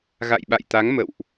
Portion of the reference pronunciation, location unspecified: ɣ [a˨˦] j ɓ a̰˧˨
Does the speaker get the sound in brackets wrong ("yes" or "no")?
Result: yes